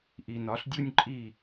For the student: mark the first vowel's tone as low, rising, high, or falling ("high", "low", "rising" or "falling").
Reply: low